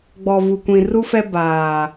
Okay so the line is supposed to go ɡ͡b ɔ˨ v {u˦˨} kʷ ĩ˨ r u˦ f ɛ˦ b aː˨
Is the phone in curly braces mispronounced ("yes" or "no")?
yes